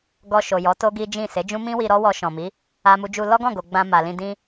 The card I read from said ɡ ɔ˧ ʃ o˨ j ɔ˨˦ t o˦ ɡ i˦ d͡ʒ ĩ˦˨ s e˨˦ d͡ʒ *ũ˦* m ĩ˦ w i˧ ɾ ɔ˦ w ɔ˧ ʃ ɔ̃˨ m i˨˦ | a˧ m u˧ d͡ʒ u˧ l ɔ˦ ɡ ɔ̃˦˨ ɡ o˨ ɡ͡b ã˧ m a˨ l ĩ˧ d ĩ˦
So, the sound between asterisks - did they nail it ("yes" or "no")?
yes